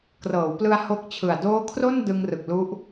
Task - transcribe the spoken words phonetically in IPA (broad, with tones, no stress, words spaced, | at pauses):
krɤː˩˦wplɯ˧a̯ ho˦˥k̚t͡ɕʰɯ˨˩a̯ doː˦˥kʰro˥˩n dɯ˧ŋrɯ˨˩k̚ lu˦˥ʔ